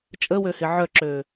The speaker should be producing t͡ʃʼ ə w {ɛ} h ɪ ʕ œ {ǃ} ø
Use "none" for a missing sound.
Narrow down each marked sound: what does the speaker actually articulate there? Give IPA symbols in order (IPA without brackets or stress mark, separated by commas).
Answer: ø, ǁ